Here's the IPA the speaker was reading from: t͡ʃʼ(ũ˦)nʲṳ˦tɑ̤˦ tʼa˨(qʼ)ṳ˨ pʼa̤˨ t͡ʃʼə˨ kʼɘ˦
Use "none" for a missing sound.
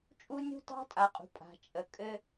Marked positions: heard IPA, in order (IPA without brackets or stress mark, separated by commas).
u˦, qʼ